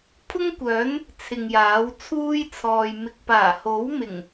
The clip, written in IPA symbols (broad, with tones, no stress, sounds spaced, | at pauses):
pʰ ʊ˥ ŋ kʷ œː˨˥ n | t͡sʰ ɪ˨ ŋ j aː˨˥ w t͡sʰ uː˥ j t͡sʰ ɔː˨ j m ɪ˨ k̚ p aː˨˩ h o˨˥ w m ɪ˨˩ ŋ